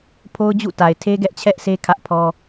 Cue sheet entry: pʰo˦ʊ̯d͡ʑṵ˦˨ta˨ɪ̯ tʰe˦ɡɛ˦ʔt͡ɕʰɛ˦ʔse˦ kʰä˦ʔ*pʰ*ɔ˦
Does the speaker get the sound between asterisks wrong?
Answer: no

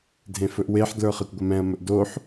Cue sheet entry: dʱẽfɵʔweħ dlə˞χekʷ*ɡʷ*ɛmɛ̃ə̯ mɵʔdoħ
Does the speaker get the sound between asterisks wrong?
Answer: no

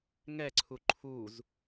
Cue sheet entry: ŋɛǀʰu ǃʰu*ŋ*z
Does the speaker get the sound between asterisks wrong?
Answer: yes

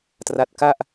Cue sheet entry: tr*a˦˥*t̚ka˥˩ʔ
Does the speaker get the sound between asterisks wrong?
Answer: no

